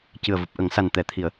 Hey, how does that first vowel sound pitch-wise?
low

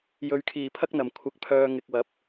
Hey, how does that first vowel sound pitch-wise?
low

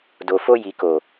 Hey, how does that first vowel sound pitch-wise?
low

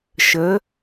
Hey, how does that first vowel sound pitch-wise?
rising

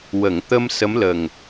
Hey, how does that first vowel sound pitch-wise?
low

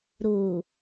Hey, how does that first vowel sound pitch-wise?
low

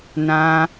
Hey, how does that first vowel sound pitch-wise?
high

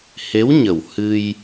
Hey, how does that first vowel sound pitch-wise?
rising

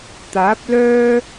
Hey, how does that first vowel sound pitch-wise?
rising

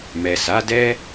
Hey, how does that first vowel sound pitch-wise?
low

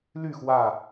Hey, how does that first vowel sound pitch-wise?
falling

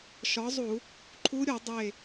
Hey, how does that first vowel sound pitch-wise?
rising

